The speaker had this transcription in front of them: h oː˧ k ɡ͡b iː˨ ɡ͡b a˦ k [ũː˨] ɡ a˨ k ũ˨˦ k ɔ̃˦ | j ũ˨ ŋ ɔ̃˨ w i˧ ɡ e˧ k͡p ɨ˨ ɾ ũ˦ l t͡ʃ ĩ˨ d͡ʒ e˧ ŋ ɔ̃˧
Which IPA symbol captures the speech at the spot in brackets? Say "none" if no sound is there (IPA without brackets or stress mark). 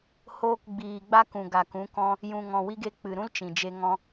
ũ˨